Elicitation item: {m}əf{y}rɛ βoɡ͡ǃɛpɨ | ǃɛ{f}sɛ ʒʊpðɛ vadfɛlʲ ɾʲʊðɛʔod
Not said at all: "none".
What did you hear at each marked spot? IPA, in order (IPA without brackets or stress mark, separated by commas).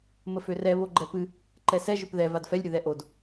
m, ø, none